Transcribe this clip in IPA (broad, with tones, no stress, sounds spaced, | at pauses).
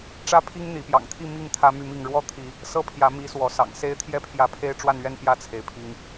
ʈ͡ʂ ä˦ pʰ i˦ ŋ n̪ i˨˦ p j ɑ̰˨˩ ŋ t̪ʰ i˥˨ m i˥˨ ŋ t̪ʰ ä˦ m y˥˨ m i˥˨ ŋ ɻ w ɔ˥˨ t̪ʰ i˨˦ | s ɤ˥˨ pʰ j ä˨˦ m i˨˦ s w ɔ˨˦ s ɑ̰˨˩ ŋ s e˦ ɪ̯ t̪ʰ j ɛ˥˨ pʰ j ä˨˦ pʰ e˦ ɪ̯ ʈ͡ʂ w a˥˨ n ɥ ɛ˥˨ n p j ä˥˨ t͡sʰ e˩ ɪ̯ pʰ i˨˦ ŋ